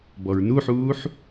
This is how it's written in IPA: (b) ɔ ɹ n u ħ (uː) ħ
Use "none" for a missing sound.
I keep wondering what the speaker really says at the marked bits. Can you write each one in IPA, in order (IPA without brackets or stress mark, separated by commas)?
b, uː